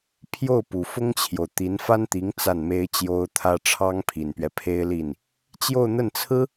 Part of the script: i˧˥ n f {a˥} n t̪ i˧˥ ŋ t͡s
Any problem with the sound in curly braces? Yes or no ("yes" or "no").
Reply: no